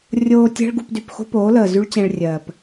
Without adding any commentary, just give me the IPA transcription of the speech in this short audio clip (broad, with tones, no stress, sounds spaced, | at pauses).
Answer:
rʲ oː˧ tʲ ɛ̤˦ ɭ ɡ u˧ p d y˨ p x o̤˦ p oː˨˦ l əː˨ z y˦ ɭ t͡ɕ ɛ̃˧ ɭ rʲ ɜː˨ p